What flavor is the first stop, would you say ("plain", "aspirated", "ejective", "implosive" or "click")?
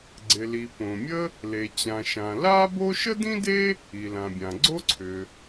click